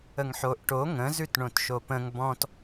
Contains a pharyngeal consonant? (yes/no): yes